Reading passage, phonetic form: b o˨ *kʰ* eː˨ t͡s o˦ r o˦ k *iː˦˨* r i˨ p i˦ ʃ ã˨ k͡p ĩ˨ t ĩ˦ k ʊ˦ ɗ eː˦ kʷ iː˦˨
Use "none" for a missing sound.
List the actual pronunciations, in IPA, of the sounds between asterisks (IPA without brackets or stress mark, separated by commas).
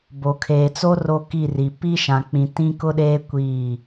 kʰ, i˦˨